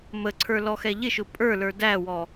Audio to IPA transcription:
m ə ǀʰ ə˞ l ɔ x ɛ ʎ ɪ ʃ ʊ pʼ ə˞ l ə˞ d æ w ɔ

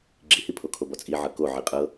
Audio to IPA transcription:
ɡ͡ǁ i h i pʰ o kʰ o b ɔ t͡sʼ i ʕ ɤ k o ʕ i qʼ ɤ

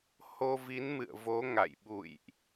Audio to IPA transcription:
h o˧ v i˨˦ n m ɨ̰˧˨ ə̯ v o˨˦ ŋ a̰˧˨ j ɓ ṵ˧˨ j ʔ

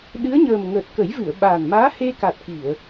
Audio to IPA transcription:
ɗ ɨ˧˥ ə̯ ɲ əː˨˩ m ŋ əː˨˩ t̚ k ə˨˩˦ j v ɨ˨˩˨ ə̯ ɓ aː˨˩ n m aː˧˥ h e˧ k a˨˩ t̚ k i˨˩˨ ə̯

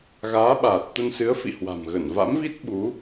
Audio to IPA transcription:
ɣ aː˨˦ ɓ aː˨˩ t̚ t̪ ə˧ n s ɨ˨˦ ə̯ f ḭ˧˨ h w a̤˨˩ m ɣ ə˧˩ n v a̰˧˥ m v i˦˥ t̚ ɓ u˨˦

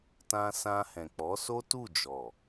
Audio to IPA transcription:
t ã˧ s ã˧ h ɛ̃˨ k͡p ɔ˨˦ s o˦ t u˦˨ d͡ʒ ɔ˨

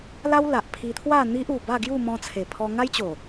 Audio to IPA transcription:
l a˦ w l a˨ ʔ pʰ i˧ t̪ʰ w a˥˧ n̪ i˦ ʔ u˨˩ b a˥˧ ɡ j u˥˧ m ɔ̃˧ t͡sʰ e˨˩ pʰ ɔ˧ ŋ a˦ j t͡ɕ o˨˩

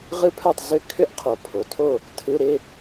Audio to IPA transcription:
ʁ ɯ˦˥ pʰ œ˥˨ tˤ z ʏ˦˥ kʰ ʏ˦˥ ʔ qʰ o˨˩˦ pʰ o˩˧˩ tʰ o˥˨ | tʰ ɯ˧˥˧ ɾ ɪ˧˥˧

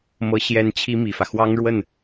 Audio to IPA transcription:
m ɤ˧˥ ɕ j ɛ˧˥ n t͡ɕʰ i˥ m i˨˩ f ä˦ x w ɑ˥ ŋ ɻ w ə˥˩ n

